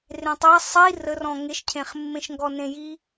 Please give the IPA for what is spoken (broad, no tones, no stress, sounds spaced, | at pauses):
r ẽ tˤ æ sˤ i r ə r ɔ̃ ŋ e ʃ cʰ ẽ χ mː ẽ ʃ ŋ ɡ ɔ n ẽ j i